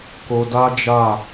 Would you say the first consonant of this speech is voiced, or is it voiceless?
voiceless